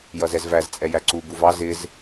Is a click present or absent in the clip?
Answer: present